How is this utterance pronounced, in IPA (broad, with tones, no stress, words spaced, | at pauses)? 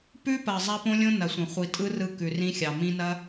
pʉ˦pɐ˨ zˤa˦põ˦lʲõ˦ nɐ˨sʷɐ̃˨ χʷi˨ tʼɯ˦rɯ˧ kʉ˨rĩ˦xʲɑ˨ mĩ˧nɐ˦